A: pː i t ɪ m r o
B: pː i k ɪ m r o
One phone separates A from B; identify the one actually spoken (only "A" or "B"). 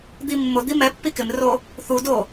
B